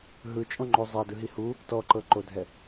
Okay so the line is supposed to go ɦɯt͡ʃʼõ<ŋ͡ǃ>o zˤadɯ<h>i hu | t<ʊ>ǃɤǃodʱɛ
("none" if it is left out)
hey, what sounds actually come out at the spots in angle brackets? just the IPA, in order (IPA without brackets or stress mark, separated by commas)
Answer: ŋ͡ǃ, ɦ, ɔ